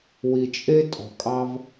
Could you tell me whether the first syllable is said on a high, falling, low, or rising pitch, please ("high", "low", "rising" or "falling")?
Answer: low